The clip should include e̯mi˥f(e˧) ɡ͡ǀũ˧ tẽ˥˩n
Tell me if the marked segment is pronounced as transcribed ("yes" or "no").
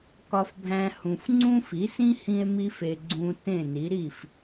yes